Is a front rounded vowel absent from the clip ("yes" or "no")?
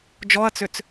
no